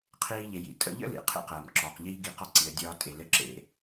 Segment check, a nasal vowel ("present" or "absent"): absent